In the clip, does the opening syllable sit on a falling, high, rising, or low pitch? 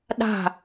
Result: falling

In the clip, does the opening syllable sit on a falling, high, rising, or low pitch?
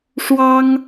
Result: high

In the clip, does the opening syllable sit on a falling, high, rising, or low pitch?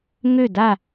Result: falling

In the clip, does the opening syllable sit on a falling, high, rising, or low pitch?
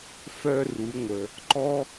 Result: high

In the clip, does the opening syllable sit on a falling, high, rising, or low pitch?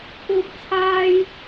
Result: high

